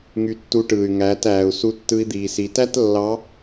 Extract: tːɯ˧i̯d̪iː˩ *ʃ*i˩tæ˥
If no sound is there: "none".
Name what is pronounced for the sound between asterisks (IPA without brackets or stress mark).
s